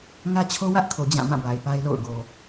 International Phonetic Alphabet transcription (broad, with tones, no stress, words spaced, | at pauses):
ŋä˦t͡ɕʰo˦wä˦ʔkʰo˨ d͡ʑã˦˨mã˦˨ba˨ɪ̯ pa˦ɪ̯lo̰˦˨ʊ̯ ɡo˨